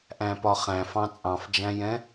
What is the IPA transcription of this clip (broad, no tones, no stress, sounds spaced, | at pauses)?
ʔ æ̃ p ɒ χ æ̃ f ɑ̃ t͡sʼ ɑ̃ f d͡ʒ æ̃ j ɛ̃